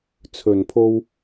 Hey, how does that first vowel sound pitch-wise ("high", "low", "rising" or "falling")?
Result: low